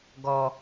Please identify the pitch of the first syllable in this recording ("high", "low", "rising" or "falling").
low